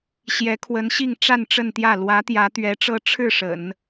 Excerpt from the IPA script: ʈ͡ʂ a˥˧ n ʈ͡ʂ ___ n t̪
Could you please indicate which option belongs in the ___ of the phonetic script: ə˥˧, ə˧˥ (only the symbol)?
ə˥˧